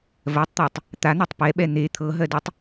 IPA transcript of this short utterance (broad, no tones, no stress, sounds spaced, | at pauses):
v ɜ tˤ t̪ æ tˤ | t̪ a n̪ o tˤ p ɛ ɓ ɛ n̪ e t̪ʰ ɤ ɦ ɜ d ɯ tˤ